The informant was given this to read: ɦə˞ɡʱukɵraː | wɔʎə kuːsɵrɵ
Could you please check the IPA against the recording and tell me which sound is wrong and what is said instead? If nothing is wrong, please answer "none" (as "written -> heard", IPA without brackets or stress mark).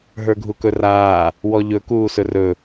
ə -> ɵ